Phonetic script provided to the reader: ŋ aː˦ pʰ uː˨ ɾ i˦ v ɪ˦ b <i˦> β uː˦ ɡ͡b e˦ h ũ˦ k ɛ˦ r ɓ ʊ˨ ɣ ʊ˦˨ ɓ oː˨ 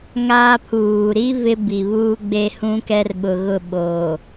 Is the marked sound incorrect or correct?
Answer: incorrect